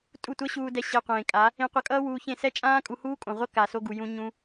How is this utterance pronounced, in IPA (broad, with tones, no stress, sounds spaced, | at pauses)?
tʼ u˦˨ tʷ ʌ˦ ɕ uː˧ d ɛ˧ ɕ e˧ qʷ ẽː˨ kʼ a˨˦ | ẽ˧ qʷ ʌ˧ kʼ ʌː˦ w uː˧ ç ẽ˦˨ s ɛ˦ t͡ʃʼ ãː˦ kʼ u˧ h uː˦ kʼ õ˨ ʁʷ ʌ˦ k a˨ s o˧ ɡ u˨ j ũ˧ ɲ ũ˦